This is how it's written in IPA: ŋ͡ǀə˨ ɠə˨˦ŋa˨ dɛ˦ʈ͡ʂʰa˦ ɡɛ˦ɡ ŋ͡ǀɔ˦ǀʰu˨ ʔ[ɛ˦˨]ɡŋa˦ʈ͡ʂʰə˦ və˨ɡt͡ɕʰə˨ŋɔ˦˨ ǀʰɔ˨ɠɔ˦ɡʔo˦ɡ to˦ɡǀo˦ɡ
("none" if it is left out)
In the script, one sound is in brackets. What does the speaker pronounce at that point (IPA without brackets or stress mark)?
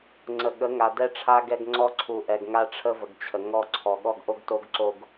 ɛ˨